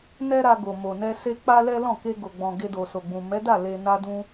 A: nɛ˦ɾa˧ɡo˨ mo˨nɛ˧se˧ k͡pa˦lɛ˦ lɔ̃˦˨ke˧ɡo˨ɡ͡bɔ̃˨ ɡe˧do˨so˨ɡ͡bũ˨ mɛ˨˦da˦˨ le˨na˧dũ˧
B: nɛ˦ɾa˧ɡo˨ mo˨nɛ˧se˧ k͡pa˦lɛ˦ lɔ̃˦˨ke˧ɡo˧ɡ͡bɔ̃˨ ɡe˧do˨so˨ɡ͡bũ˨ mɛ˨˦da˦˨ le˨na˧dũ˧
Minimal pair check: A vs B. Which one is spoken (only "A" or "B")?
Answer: A